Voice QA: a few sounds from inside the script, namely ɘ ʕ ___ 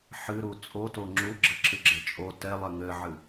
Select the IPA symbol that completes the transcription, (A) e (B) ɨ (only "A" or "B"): B